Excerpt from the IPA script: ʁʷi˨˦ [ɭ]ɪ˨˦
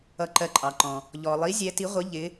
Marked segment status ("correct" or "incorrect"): incorrect